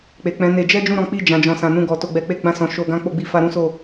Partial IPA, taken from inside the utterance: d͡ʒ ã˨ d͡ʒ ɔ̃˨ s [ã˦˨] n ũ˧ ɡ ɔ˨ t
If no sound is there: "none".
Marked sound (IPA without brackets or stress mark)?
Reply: ã˨